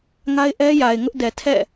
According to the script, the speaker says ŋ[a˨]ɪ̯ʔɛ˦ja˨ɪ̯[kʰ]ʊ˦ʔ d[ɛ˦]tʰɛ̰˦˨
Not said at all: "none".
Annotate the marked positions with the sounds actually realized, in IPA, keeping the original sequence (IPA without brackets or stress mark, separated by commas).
a˦, ŋ, ɛ˨